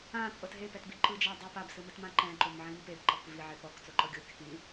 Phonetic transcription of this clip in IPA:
ã t͡sʼ ɤ t ɦ e p ɛ t b i ǃ ɯ d͡ʒ a dˤ ɯ p a b s ɯ m ɯ t m ã ǃ ɛ̃ ǃ o m ʕ ĩ m p e b ǃ ɤ k v i ʕ e p ɔ k t͡s o ǃ ɤ ɡʲ o kʲ ɯ k ĩ

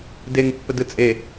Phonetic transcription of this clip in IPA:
d e ŋ pː ə d ɯ t͡sʼ e

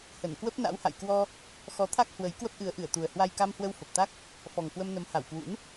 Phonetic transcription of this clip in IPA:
h ə˧˩ n k w ə˦˥ p̚ n a̰˧˥ w h a̰˧˨ j k w ɔ˧ | x ɔ˨˦ t̪ʰ a˦˥ k̚ h w ə˨˦ j k w ə˦˥ p̚ ʔ ɨ˨˦ ə̯ ʔ ɨ˧˩ ə̯ t̪ u˨˩ ə̯ h w a˧ j k a˧ m h w ə˧ w f ə˨˩ p̚ t̪ a˦˥ k̚ | f ɔ˨˩ ŋ k w ə˧ m n ə˨˦ m h a˧˩ w k w ṵ˧˥ n

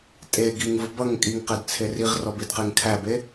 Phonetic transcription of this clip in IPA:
tʼ e ɡ i ŋ v ʊ b ʌ ŋ kʼ i ŋ q ɛ d t͡sʰ e r i ʁ r ɔ b i d q e ŋ kʰ æ b e

